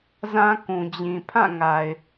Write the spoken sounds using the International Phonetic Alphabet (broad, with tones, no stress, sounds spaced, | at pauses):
z ã˦ k ũ˨ d͡ʑ ĩ˨ pʰ ã˦˨ ŋ a˨ ɪ̯